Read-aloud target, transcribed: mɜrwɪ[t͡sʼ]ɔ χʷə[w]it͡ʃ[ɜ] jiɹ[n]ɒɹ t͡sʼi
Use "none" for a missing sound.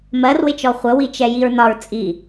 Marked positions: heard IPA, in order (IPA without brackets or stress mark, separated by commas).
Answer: t͡ʃ, w, ɛ, n